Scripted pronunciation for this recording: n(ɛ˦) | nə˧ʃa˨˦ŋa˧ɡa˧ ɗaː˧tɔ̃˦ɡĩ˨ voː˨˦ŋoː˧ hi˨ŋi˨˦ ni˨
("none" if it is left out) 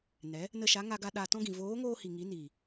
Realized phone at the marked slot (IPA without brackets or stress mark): ɛ˨˦